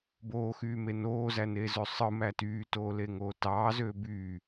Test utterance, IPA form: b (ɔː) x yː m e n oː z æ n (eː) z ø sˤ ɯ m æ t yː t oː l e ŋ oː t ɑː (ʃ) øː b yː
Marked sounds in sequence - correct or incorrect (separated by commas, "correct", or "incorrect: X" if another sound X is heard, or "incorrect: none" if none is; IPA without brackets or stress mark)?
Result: incorrect: oː, correct, incorrect: z